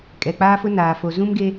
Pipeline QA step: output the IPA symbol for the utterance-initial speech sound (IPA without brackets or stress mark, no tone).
kʼ